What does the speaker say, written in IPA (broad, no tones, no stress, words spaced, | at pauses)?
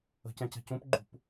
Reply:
ə̤cɛ̃cɛ̤ cũpɡ͡ǃṳp